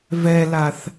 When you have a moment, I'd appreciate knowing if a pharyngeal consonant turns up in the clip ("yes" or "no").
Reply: no